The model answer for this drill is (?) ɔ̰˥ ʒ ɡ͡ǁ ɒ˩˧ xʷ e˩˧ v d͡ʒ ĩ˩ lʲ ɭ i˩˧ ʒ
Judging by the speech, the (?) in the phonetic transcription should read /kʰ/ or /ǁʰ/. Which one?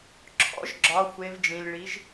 ǁʰ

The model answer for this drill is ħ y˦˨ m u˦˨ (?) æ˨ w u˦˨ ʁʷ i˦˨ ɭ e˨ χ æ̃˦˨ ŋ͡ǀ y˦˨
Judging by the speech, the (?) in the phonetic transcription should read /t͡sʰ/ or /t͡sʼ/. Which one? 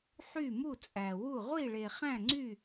t͡sʼ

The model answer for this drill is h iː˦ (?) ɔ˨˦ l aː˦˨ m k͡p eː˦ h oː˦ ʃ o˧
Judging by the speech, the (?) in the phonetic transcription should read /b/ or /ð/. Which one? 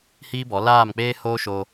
b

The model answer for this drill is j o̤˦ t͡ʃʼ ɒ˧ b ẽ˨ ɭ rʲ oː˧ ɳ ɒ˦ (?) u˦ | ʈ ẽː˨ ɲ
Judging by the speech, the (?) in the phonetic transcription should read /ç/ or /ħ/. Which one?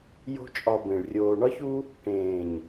ç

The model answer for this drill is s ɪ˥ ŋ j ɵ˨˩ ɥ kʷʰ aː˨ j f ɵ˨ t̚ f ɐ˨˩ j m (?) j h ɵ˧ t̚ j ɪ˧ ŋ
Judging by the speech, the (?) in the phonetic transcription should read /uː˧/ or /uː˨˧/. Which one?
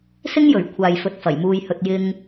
uː˧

